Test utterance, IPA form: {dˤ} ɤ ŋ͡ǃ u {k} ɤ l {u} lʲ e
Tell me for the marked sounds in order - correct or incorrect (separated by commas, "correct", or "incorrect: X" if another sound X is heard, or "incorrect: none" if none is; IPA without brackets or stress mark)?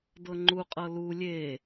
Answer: incorrect: d, incorrect: qʼ, correct